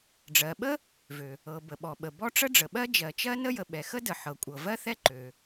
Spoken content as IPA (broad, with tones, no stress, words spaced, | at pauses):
ɖ͡ʐɜ˩ɓə˥ | vø˩ | ɤ˩ bə˩ɓɔ˩ ɓə˩bɔ˥ ʈ͡ʂə˥ɖ͡ʐə˩ɓɜ˥ d͡ʒɜ˩t͡ʃɜ˥nə˥jə˩ ɓɛ˩xə˥də˩ ħɤ˩kʷʼɤ˩vɜ˥ θɛ˥ǃø˩